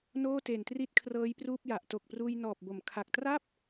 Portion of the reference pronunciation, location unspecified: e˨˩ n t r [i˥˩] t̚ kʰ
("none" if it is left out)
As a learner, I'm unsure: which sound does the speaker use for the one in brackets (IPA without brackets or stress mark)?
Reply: i˥˩